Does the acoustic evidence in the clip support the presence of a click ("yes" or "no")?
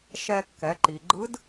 yes